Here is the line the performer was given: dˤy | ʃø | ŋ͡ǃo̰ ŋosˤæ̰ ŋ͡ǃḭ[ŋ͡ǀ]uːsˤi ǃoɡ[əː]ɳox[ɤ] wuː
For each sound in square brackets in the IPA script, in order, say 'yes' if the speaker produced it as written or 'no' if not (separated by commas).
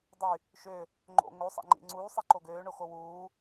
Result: yes, no, no